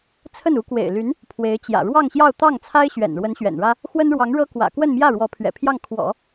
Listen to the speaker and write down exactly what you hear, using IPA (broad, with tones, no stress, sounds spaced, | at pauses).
t͡sʰ ə˥˩ n u˧˥ k w ḛ˨˩ ɪ̯ l y˧˥ n | pʰ w e˧˥ ɪ̯ t͡ɕ j ä̰˨˩ ɻ w ɑ˥˧ ŋ ɕ j ɑ˥˧ ʊ̯ t̪ ɑ˥˩ ŋ t͡sʰ a˥ ɪ̯ ɕ ɥ ɛ̰˨˩ n ɻ w ə˧˥ n ɕ ɥ ɛ̰˨˩ n ɻ ä˥ | x w ə˥ n ɻ w ɑ˧˥ ŋ ɻ ɤ˥ k w ä̰˨˩ k w ə˥˧ n m j ä˥˩ ɻ w ɔ˧˥ pʰ ɥ ɛ̰˨˩ pʰ j ɑ˥˩ ŋ kʰ w ɔ̰˨˩˦